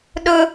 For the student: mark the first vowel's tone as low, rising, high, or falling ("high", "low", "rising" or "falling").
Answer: high